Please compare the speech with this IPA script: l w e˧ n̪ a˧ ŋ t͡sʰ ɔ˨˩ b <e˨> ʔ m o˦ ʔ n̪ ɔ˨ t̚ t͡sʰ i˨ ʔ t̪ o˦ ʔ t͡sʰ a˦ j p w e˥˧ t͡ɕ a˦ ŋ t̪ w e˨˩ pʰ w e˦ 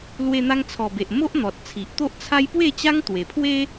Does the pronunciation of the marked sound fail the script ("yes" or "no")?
no